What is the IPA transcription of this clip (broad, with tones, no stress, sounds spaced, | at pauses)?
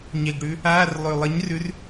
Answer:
ɲ e˨˩ ɡ ɽ ʉ˨˥ | aː˧˥˧ r lˠ ʉ˨˩ lˠ ə˨˥ ɲ r ʉ˨˥ r